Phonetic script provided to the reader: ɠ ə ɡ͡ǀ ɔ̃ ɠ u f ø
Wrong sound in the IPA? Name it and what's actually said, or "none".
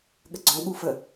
ø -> ə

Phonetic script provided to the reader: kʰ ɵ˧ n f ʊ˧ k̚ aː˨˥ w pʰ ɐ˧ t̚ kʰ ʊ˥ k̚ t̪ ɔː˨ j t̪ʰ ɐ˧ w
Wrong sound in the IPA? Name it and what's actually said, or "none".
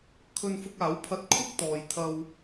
none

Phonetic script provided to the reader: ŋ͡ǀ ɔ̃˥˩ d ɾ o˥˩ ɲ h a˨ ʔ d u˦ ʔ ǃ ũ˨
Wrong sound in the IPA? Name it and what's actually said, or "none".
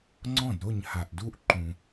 none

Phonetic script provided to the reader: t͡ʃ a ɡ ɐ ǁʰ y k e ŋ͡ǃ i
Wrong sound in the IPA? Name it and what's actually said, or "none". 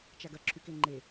i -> e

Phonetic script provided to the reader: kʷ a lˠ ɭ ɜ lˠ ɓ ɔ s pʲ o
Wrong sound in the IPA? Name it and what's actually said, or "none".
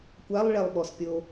ɜ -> ɛ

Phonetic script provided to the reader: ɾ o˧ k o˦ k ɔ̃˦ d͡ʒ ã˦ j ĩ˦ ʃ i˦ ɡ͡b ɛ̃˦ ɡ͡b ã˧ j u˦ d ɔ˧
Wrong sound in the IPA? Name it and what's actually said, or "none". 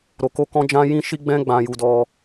u˦ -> u˧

